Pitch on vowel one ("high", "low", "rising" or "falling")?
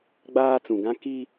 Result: high